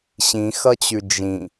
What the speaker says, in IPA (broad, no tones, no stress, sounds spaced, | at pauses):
ɕ ĩ x ʌ t͡ɕ ʉ d͡ʒ ĩ